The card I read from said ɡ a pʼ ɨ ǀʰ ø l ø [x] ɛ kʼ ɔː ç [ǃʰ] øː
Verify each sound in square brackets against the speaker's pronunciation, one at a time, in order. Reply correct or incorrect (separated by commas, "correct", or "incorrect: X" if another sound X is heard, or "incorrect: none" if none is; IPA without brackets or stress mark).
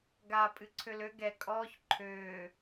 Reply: incorrect: ɡ, correct